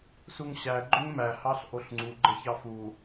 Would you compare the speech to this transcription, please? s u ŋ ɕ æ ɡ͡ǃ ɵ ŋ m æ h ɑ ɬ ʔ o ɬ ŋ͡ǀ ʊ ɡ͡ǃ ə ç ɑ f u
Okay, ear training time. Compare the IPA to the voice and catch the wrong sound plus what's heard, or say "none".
ʊ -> u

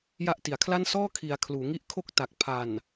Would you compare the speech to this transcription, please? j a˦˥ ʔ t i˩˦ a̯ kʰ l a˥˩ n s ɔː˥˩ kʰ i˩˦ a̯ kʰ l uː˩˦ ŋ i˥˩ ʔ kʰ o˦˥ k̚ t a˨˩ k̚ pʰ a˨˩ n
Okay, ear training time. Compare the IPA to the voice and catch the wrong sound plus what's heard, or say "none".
none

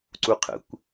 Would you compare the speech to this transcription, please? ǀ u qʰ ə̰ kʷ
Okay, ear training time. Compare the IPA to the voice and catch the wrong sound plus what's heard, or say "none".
none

